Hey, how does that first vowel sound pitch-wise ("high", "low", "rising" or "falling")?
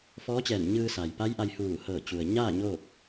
rising